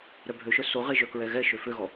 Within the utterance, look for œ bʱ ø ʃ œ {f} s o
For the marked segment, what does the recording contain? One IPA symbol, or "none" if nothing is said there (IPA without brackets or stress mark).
none